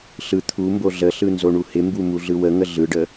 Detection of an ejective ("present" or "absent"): absent